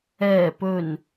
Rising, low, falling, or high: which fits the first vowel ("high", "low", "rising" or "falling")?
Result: low